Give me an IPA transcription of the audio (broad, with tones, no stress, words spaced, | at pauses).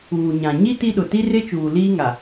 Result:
uː˨ɲã˨ ɲi˦ ti˦ɗʊ˨ ti˦rɪ˦t͡ʃuː˨ liː˦ŋa˨